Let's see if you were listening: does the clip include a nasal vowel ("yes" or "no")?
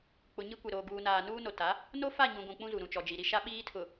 yes